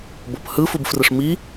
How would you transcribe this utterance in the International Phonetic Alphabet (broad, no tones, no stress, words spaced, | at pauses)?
bɤphɯ fubfrɯʂmi